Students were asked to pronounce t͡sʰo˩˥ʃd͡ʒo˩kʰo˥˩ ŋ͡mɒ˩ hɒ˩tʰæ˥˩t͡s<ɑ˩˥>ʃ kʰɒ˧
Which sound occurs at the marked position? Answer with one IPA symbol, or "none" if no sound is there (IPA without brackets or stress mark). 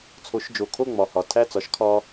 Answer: ɒ˩˥